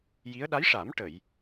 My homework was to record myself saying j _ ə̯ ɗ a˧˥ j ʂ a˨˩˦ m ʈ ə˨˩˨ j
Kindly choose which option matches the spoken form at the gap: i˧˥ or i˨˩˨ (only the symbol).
i˧˥